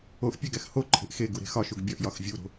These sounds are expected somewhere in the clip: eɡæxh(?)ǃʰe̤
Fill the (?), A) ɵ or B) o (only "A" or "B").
B